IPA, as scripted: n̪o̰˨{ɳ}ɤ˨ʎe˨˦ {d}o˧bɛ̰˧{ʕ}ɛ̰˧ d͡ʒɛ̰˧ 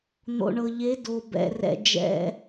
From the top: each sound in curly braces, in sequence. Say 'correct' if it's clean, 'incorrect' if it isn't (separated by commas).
correct, correct, incorrect